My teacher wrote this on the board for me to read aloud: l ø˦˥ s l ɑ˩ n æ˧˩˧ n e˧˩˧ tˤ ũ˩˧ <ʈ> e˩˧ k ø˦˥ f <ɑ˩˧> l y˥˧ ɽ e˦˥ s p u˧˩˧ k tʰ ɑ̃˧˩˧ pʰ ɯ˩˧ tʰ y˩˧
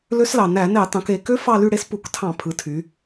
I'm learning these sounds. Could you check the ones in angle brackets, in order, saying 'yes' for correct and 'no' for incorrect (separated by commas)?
no, no